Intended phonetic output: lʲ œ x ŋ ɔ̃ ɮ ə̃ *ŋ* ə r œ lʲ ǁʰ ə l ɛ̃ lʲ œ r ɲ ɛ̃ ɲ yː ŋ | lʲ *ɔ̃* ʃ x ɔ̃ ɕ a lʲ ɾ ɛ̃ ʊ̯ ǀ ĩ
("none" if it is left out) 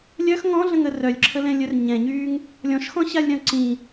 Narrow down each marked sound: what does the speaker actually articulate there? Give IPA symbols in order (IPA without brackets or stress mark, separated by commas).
ŋ, ɔ̃